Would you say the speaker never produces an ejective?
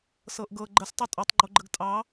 no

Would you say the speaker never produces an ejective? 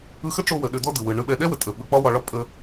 no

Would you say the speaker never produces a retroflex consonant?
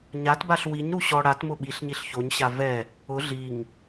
no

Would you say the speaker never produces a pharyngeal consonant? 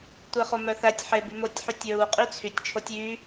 no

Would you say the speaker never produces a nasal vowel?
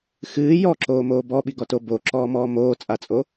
yes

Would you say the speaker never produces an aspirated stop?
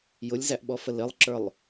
yes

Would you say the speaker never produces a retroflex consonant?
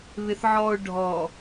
no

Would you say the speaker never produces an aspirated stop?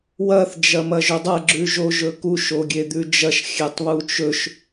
yes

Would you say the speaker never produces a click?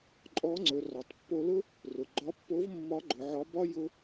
no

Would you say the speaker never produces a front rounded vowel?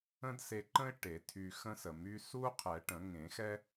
no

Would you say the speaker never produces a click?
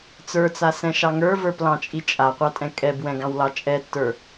yes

